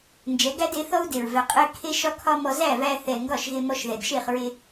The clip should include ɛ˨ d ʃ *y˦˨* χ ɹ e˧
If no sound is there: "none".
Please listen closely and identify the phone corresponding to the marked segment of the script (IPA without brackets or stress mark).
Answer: e˦˨